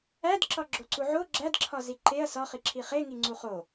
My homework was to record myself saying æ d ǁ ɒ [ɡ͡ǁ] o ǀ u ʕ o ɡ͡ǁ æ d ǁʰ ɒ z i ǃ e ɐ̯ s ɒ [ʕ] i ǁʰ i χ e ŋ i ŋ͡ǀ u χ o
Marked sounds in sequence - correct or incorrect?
correct, incorrect

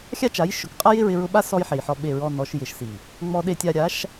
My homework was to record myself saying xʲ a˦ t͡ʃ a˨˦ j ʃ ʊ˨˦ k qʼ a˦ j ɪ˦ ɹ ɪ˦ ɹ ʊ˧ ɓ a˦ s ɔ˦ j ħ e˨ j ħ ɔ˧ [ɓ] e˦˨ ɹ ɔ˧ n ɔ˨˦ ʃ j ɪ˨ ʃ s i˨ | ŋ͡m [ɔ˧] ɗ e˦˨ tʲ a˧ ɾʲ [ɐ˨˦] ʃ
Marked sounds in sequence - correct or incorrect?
correct, correct, incorrect

